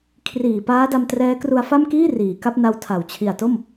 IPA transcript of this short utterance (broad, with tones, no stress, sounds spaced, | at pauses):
kʰ r iː˨˩ p aː˦˥ d a˧ m t r ɛː˦˥ k r u˧ a̯ f a˥˩ m k iː˥˩ r iː˩˦ k a˦˥ p̚ n a˧ w tʰ a˩˦ w t͡ɕʰ i˨˩ a̯ t o˥˩ m